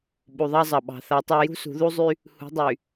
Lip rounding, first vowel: rounded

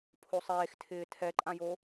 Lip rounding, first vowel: rounded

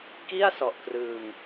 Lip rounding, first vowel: unrounded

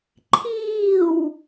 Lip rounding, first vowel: unrounded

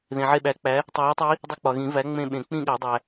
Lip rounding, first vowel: unrounded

